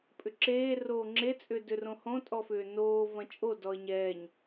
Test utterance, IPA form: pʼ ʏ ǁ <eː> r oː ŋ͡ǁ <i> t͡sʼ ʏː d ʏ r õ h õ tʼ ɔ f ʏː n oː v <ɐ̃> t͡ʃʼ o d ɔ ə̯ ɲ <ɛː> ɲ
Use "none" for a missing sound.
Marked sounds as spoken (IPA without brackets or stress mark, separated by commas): eː, e, ɐ̃, ɛː